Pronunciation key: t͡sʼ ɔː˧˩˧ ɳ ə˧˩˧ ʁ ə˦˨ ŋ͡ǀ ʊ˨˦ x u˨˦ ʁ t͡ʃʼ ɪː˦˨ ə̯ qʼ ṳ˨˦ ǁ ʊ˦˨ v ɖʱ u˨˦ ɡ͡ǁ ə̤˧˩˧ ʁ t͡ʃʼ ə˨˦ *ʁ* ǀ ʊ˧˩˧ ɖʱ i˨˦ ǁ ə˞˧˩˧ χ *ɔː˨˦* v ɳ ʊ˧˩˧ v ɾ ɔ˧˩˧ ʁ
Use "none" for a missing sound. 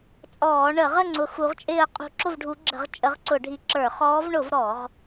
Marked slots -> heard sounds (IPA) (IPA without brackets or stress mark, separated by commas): ʁ, ɔː˨˦